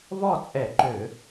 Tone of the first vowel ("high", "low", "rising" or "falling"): falling